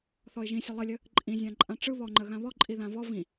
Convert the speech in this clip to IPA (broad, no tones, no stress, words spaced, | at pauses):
θɔɪ̯ʒĩsʲə lˠəlʲə | ǃʼĩzʲãǃʼã ʈ͡ʂɯ βɔŋ͡ǃə ɣãβɔǃʼi ðãvɔ vĩ